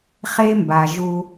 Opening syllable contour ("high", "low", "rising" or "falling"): high